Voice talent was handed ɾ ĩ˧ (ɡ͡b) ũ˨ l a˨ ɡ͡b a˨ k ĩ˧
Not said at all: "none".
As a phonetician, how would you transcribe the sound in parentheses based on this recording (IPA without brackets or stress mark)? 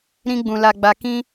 ɡ͡b